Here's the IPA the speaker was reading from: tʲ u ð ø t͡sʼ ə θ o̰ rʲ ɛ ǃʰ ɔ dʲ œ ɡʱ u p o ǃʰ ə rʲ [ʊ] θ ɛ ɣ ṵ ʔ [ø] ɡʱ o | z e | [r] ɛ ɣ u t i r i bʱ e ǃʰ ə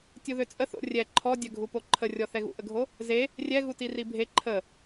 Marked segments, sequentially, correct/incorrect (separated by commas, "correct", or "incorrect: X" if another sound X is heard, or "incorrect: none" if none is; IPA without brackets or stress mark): incorrect: ɔ, incorrect: ə, incorrect: rʲ